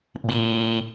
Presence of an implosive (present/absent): present